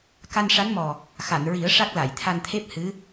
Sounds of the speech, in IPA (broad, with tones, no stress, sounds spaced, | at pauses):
k a˧ n ʂ a˧˥ n m ɔ˨˩ | x a˨˩˨ n ɹ i˨˩˦ ə̯ ʂ a˦˥ k̚ l a˨˩˨ j t̪ʰ a˧ n t̪ʰ e˦˥ p̚ h ɨ˧˥